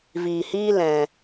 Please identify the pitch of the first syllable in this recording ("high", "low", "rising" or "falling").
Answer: low